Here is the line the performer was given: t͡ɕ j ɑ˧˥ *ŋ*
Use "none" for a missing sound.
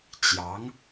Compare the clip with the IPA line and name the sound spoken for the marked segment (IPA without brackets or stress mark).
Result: ŋ